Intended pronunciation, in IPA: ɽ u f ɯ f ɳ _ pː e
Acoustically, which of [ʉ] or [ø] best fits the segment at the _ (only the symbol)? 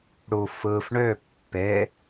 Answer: ø